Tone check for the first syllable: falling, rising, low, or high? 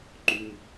high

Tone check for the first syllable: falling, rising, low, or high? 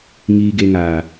low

